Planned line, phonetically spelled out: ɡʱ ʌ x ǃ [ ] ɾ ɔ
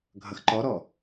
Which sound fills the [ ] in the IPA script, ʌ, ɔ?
ɔ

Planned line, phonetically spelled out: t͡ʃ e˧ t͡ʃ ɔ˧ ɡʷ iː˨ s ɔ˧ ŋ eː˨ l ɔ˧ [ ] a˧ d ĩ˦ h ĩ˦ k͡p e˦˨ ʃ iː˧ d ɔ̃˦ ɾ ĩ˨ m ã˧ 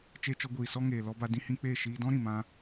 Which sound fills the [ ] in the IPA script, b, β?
b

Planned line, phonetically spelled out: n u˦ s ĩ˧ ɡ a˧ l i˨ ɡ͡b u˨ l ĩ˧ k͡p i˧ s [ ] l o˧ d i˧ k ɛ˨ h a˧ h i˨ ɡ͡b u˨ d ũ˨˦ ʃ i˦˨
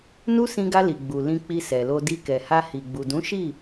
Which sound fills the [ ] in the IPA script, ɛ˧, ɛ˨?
ɛ˨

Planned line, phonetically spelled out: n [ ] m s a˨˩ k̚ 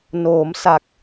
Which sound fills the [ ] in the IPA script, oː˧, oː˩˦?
oː˩˦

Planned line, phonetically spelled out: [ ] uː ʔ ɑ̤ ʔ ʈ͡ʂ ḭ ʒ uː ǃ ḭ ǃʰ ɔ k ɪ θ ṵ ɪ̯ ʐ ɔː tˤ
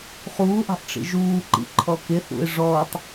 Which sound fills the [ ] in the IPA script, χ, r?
χ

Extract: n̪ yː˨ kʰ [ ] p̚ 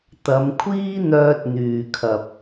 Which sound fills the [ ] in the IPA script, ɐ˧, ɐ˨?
ɐ˨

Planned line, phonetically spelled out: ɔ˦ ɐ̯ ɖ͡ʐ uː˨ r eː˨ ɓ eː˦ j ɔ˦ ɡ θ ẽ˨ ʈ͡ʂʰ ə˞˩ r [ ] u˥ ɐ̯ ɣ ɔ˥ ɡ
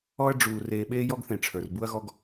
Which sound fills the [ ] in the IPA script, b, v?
b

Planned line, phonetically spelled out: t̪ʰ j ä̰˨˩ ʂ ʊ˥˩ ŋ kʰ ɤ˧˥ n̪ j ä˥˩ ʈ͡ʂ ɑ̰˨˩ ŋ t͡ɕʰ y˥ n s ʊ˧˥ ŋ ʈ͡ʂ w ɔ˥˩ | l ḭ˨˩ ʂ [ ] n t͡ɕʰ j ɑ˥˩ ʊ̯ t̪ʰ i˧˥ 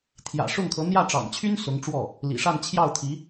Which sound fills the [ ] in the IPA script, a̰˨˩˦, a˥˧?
a˥˧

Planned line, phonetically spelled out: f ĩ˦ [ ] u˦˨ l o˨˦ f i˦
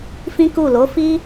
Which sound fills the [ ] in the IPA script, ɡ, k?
k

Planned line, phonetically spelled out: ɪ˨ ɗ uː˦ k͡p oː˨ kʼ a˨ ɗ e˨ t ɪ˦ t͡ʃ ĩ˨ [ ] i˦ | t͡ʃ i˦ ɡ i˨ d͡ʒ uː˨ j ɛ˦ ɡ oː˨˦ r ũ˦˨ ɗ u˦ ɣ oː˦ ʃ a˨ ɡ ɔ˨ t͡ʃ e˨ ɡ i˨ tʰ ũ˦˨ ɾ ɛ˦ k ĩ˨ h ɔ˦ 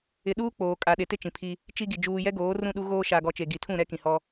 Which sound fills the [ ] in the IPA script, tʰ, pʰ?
pʰ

